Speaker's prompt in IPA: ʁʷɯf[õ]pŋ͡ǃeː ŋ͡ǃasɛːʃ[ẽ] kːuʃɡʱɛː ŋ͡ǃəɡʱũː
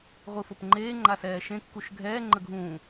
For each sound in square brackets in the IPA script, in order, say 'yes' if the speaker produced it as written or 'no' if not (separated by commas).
no, yes